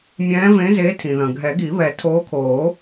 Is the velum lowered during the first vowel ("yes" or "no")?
yes